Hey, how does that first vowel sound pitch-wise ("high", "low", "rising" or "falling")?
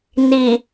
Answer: low